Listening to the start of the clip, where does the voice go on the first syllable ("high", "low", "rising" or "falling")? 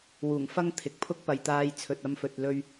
low